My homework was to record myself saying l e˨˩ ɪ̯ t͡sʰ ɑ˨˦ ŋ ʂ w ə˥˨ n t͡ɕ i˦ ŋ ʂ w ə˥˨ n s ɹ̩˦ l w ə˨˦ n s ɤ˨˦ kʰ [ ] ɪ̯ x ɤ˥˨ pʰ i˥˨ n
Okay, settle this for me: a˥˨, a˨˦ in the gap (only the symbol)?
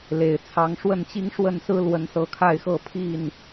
a˥˨